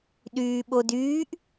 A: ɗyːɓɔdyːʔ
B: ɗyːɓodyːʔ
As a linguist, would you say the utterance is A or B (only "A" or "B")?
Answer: B